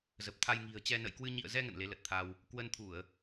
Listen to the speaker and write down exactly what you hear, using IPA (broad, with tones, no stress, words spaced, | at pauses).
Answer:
zə˨˩p̚t̪ʰa˧jŋi̤˨˩ə̯t͡ɕɛ˧ nə̰˧˨jkwɨ˧ ɲḭ˧˨ə̯zɛ˧ ŋə̰˧˨nle˨˦lə˨˩t̚t̪ʰa˧w | kwə˧nt̪ʰu˧˩˨ə̯